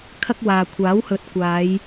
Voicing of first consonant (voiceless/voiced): voiceless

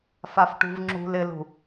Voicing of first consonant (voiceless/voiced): voiceless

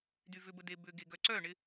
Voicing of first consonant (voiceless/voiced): voiced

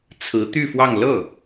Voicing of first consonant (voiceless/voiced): voiceless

